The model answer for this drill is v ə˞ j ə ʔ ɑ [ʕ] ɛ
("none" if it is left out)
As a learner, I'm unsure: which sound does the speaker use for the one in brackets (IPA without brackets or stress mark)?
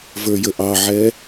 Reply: ʕ